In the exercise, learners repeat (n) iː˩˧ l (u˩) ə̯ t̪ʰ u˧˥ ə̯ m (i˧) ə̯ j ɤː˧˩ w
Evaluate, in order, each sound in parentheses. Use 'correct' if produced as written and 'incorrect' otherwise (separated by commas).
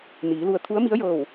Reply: correct, incorrect, incorrect